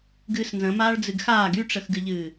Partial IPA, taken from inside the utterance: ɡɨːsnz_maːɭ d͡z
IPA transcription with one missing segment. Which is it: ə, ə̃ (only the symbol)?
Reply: ə̃